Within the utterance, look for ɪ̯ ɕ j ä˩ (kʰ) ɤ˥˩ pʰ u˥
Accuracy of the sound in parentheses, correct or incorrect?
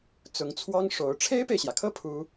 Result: correct